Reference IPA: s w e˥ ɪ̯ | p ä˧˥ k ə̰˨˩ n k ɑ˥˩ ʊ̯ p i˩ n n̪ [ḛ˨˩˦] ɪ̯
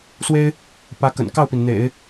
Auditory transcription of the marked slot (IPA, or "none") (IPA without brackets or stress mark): ḛ˨˩˦